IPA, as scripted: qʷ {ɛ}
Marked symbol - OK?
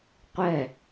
yes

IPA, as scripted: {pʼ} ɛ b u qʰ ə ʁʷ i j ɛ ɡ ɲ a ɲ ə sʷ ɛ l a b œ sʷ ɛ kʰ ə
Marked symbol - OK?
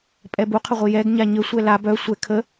yes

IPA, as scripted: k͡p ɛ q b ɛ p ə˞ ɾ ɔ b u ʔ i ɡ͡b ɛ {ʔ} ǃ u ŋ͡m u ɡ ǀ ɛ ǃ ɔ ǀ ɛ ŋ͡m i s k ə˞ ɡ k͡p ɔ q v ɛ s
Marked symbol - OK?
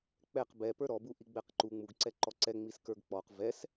no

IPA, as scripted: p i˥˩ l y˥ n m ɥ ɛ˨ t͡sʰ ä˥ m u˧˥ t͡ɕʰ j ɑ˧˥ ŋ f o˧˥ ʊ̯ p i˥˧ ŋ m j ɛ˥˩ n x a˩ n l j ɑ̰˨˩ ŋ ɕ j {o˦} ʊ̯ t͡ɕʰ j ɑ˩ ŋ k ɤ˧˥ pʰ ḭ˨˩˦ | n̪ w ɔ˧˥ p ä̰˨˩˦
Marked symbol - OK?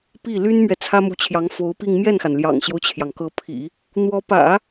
yes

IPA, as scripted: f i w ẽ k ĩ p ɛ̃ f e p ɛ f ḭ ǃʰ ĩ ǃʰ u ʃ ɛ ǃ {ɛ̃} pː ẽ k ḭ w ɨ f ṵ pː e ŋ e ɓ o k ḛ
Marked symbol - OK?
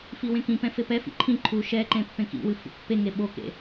no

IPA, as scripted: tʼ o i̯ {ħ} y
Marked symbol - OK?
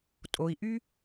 no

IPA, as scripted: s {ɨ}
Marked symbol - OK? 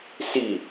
no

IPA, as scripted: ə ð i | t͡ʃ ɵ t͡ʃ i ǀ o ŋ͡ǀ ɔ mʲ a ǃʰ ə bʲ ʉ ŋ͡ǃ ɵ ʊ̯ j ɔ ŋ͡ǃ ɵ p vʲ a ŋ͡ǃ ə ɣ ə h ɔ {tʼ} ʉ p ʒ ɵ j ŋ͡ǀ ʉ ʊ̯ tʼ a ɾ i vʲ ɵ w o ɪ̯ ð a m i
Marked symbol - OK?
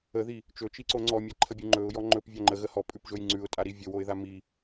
no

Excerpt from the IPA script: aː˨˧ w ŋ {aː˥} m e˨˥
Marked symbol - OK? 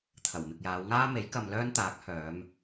yes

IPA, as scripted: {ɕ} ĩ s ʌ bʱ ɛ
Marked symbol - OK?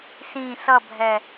no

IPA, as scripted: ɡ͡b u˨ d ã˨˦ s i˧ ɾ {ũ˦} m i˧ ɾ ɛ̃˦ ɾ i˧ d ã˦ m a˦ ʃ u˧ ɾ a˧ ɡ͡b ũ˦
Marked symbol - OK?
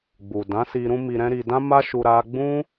yes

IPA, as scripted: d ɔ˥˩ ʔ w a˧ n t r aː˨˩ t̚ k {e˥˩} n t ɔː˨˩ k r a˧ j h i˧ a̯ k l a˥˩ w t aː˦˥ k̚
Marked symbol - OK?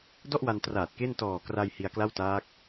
yes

